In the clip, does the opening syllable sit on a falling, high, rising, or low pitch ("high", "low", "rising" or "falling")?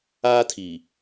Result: high